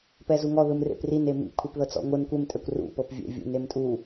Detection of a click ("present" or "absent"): absent